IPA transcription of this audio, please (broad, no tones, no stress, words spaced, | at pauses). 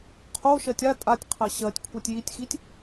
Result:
qʰoʃɜtʲ a tʼatʲqʰɜ ɕɜtʲkʷʰɜtʲ jitʲxitʲ